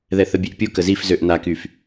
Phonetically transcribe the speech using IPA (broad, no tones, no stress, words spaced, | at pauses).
ðɛθəbʲeʔpʲu kəzifzøʔ nakyf